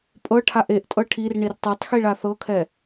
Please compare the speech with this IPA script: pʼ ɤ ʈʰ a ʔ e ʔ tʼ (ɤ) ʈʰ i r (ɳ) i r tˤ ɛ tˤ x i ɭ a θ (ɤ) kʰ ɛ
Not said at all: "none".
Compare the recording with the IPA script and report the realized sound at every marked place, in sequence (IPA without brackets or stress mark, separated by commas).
ɤ, ɳ, ɤ